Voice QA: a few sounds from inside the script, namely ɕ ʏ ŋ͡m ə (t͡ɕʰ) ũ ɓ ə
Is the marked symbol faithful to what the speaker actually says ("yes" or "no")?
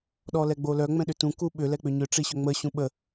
no